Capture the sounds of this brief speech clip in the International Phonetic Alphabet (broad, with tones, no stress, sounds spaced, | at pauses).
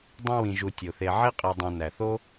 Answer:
dˤ ĩ˦ w ĩ˨ ʒ u˨ tʲ o˩ θ e˨ ʕ i˥ qʼ i˨ dˤ õ˨ n æ˩ θ o˥